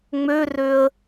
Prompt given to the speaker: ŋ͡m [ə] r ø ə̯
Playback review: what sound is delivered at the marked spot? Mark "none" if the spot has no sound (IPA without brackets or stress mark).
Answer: ø